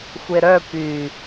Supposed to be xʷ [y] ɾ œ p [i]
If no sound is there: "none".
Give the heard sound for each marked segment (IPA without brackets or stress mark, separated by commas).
e, y